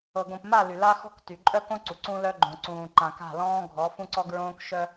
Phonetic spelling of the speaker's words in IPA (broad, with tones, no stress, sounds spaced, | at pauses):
ɤ˨ ɡ õ˨ p m a˦˨ l y˨ l a˦ x ɔ̤˦ k t y˨ ǃʼ œ˦ k õ˦ ǀ u˨ ǀ ũ˦ l œ˦ ɡ͡ǃ õ˨ ǀ ũː˨ ǃ ã˨ k a̤˦˨ l ɔ̃ː˦ ɡʱ ɔ˨˦ f ũ˦ ǀ ɔ˦ ɡ ɹ õː˦ k ʃ œ˦